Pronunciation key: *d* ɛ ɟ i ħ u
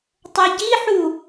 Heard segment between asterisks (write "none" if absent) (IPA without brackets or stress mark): tˤ